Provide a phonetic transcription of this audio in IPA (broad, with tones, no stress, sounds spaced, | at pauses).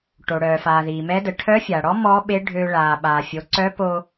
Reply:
ʈ o˩ ɽ œː˩ f aː˩ ð iː˩ m ɛ˧˥ d ə˩˧ ʈʰ œ˧˥ fʲ a˩ ɽ ɔ˧˥ m ɔ˧˥ ɓ e˧˥ ɖʱ ø˧ ɭ aː˩ ɓ a˩ fʲ o˩˧ ǀ œ˧˥ p o˧